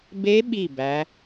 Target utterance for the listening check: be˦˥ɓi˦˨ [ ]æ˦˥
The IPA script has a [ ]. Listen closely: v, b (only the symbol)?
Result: b